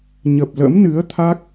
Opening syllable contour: low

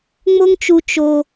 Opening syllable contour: high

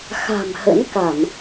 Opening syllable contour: low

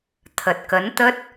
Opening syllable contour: low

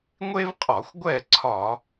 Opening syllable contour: high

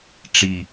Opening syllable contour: falling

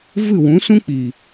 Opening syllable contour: falling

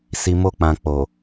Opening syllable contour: low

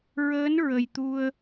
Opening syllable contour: rising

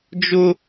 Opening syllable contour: high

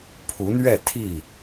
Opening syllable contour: rising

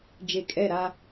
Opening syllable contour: falling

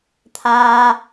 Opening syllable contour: low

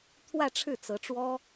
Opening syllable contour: falling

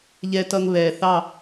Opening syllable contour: low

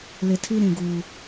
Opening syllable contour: low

